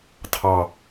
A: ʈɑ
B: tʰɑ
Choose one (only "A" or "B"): B